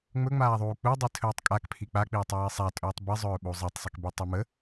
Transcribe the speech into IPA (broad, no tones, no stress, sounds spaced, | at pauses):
ŋ͡m ɵ ŋ͡m aː ðˤ uː k͡p u dˤ i tʰ ɵː tˤ kʼ a k pʰ i k͡p a k͡p iː tˤ iː sˤ a tʼ ɵː tˤ b i zˤ ɵː ɓ u zˤ ɛ tˤ sˤ i k b i tˤ o m ə